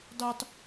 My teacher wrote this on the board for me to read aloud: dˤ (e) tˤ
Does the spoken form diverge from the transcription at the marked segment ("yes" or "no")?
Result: yes